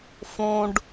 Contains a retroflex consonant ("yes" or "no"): yes